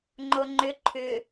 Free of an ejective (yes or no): yes